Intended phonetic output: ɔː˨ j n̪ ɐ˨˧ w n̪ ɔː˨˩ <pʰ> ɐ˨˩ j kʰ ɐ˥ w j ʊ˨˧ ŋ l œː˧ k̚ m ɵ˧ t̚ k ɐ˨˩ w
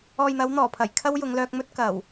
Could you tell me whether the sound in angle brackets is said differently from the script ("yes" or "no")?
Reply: no